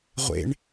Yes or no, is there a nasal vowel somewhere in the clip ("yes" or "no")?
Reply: no